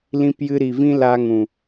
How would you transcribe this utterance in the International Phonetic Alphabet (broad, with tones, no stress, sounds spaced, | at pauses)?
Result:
l ĩ˧ p j ɨ˧ ɾ i˨ v ĩ˦ l a˧ ŋ ũ˨